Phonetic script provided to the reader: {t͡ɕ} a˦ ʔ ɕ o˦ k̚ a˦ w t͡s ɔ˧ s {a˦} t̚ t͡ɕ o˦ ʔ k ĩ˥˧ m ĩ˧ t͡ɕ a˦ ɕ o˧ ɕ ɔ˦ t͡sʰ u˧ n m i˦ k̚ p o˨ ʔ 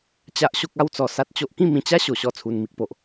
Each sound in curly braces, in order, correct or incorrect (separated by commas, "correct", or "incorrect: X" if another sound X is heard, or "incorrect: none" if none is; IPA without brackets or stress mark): correct, correct